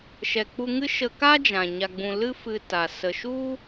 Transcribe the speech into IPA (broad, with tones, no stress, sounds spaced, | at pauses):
ʃ ɛ˨ k͡p u˧ ŋ ɨ˦ ʃ ə˧ k a˦ d͡ʒ ã˨ ɲ a˨ ɡ͡b ũ˨ l ɨ˦ f ɨ˧ t a˨ s ə˨ ʃ u˦